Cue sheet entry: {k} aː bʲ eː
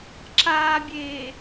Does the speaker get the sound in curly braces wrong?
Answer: yes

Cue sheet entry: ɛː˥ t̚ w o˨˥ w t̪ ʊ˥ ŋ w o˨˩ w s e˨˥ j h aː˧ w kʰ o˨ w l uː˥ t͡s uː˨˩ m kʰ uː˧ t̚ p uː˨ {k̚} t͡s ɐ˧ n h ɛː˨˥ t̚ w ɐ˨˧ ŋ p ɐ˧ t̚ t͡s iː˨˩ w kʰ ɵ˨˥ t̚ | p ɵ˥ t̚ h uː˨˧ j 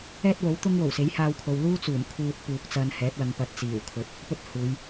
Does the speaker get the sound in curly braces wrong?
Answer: no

